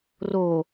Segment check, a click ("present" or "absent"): absent